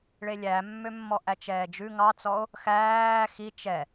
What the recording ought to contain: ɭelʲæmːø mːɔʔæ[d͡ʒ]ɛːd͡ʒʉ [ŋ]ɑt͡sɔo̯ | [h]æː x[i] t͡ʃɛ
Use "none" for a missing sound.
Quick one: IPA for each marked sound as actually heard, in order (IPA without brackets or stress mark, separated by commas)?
t͡ʃ, ŋ, x, i